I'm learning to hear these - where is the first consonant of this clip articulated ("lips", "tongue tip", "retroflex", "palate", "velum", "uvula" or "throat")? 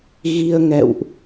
velum